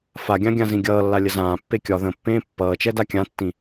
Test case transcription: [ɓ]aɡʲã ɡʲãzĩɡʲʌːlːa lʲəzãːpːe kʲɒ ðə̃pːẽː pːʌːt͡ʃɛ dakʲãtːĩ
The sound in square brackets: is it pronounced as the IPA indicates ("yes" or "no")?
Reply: no